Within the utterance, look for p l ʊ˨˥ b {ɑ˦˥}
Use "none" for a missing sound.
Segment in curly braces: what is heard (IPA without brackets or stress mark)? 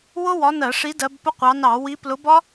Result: ɒ˦˥